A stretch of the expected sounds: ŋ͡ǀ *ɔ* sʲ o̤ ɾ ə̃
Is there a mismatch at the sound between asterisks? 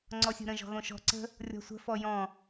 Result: no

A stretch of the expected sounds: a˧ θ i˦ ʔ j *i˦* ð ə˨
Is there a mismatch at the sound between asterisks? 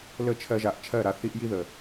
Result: no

